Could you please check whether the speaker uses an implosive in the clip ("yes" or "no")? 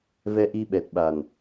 yes